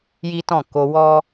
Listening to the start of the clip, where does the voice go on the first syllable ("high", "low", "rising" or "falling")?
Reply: high